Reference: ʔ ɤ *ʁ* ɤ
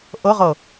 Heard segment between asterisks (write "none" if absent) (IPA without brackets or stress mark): ʁ